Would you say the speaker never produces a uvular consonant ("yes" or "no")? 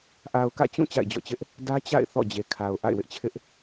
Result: yes